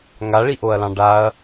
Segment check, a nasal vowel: present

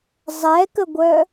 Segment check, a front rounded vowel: present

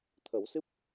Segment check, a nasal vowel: absent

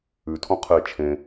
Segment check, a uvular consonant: present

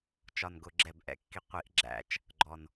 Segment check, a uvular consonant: present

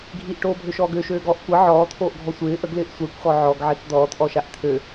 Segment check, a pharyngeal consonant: present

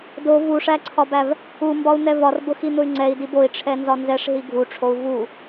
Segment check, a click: present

